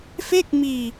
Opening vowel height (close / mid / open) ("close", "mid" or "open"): mid